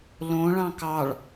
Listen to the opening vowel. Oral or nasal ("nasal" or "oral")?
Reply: nasal